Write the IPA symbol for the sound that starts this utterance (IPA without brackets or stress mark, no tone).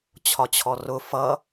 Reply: t͡ɕʰ